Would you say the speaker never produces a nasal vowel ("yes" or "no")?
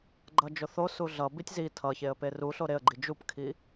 yes